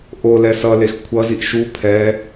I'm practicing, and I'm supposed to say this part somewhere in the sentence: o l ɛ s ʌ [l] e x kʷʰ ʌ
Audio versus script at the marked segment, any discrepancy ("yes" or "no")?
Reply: no